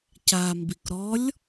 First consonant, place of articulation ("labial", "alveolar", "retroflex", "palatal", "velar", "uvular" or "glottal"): palatal